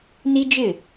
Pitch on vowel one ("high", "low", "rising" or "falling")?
high